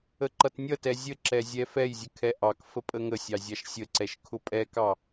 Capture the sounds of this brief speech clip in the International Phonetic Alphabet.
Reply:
ə ǃ ʌ t nʲ ʌ t ɛ zʲ ə ǁ ɛ zʲ ɛ f ɛ j zʲ ə kʰ ɛ ʔ ɑ k f ə pʼ ə ŋ ə sʲ ɑ zʲ ɑ ʃ sʲ ə ǀ ɛ ʃ kʰ ʊ pʼ ɛ k ɑ

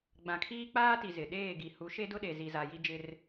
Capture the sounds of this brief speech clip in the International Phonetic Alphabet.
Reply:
ɡ͡b ã˨ kʰ iː˦ k͡p aː˦ t i˨ z ɪ˨ ɗ eː˦˨ ɡ i˨ h u˨˦ ʃ e˦ d ʊ˦ ɗ e˨ z i˨ z a˨ j i˦ d͡ʒ ɪ˦ r

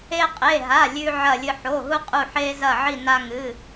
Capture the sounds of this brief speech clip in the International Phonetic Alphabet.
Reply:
e˥ qʼ e˧˥˧ ɦ a˧˥˧ lʲ ʉ˥ ʕ ɐ˥˧ lʲ ɨ˥ ħ o˧˥˧ ɦ u˥ qʼ u˥˧ ħ e˥ z ɐ˥˧ ʕ i˥˧ n a˥ ŋ ɨ˧˥˧

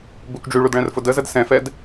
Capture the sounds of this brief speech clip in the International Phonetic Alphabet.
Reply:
b u k ɖ͡ʐ y ɭ u d ɭ ɛ̃ r f ʊ d ə z ə d s ɛ̃ f ɛ d

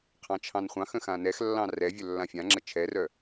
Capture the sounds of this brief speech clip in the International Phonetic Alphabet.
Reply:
qʰ ɑ̃ t͡ʃʰ ɑ̃ n χʷ ɑ̃ x ə̃ x ã n ɛ x lː ɑ̃ r ɛ vʲ œ lː ã fʲ ã ŋ͡ǁ ə t͡ʃʰ ɛ r œ

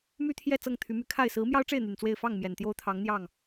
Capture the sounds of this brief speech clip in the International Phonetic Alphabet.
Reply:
m y˦ t̪ʰ j ɛ˥˨ t͡s ɤ˥˨ ŋ t̪ʰ y˨˦ m y˨˦ kʰ a˥˨ ɪ̯ s ɹ̩˨˦ m j ɑ˦ ʊ̯ ʈ͡ʂ e˥˨ ɪ̯ n̪ y˨˩ n t͡s w e˥˨ ɪ̯ f ɑ˥˨ ŋ m j ɛ˨˩ n t̪ j o˦ ʊ̯ t̪ʰ ɑ˨˦ ŋ n̪ j ɑ˥˨ ŋ

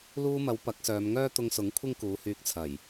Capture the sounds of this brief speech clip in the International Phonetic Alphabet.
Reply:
l uː˧ m ɐ˨˧ w p ɐ˨˥ k̚ s œː˨˧ m ŋ œː˥ t̪ ʊ˧ ŋ s ʊ˨˥ ŋ kʷʰ ɪ˥ ŋ k uː˨˧ h yː˧ k̚ t͡sʰ ɐ˨˩ j

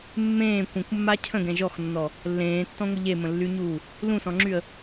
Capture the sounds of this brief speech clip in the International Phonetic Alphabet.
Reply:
mː ẽː kʷ ə̃ kʷ mː a cʰ ə̃ ɡ ɛ̃ ʒ ɔ x nː ɔ | lː ẽː tː ɔ̃ ŋʷ ə ʎ e m ə̃ lː y ɲ uː | l ũ s ɔ̃ ŋ͡ǁ y ə̯

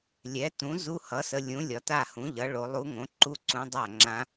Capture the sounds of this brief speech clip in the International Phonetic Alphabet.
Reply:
lʲ ɛ˩˥ t ũ˩˥ z u˧˥ h ʌ˩˥ s ə˩˧ lʲ ũ˩˥ lʲ ɒ˩˥ t a˥˩ h ũ˩˥ ʎ ʌ˩˥ ɭ o˩˧ lˠ u˧˥ ŋ õ˩˥ ǃ u˥˧ ǀ ũ˧˥ dˤ a˥˩ ŋ͡ǁ ã˧˥

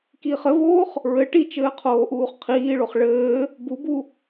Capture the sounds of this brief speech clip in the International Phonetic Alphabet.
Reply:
k iː χ ɘ v oː χ | ɹ ɘ ʈ i t͡ʃ ɘː qʰ oː ʔ uː χ qʰ iː ɭ o χ ɭ ɘː | b u b u

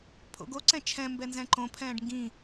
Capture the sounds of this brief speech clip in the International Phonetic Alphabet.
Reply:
pʰ o̰ ɡ o ǀ ɛ̃ t͡ʃʰ ɛ̃ m b ɛ n z ɛ̃ ǃ õ pʰ ɛ̃ː ɖ ŋ ɡ ĩ

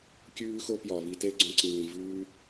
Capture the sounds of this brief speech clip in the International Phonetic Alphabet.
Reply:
kʲ ʉː˦ x o˦ p j ɒ˨ β i˧ t e˦ ɡ͡ǀ õ˧ ǀ ĩː˨ v ʉː˧

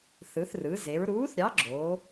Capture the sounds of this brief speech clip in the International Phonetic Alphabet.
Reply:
θ ɯ˩˧ θ r ɯ˩˧ z e˩˧ ɹ ɾ uː˨˥ θ ɾʲ ɑ˨˥ ɡ͡ǁ oː˩˧

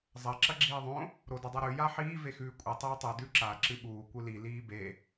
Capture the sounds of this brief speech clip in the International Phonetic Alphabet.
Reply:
zˤ ɐ ǁ ɐ ɡ͡ǁ iː ðˤ õ | ɾ o d ɐ dˤ a ɾ ʉ j a ħ iː v e x ʉː kʷʼ ɨ tˤ iː tˤ e d ʉ ǁ a ǁ ɨ ɓ uː kʷ ɨ l i l iː b e

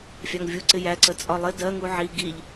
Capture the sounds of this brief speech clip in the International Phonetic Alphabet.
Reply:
fʲ ɑ ŋ vʲ u ǀ ɪ j æ ǀ ə t͡sʼ ɒ lˠ ɪ d ɜ ŋ u ʕ i ɡ i ʎ

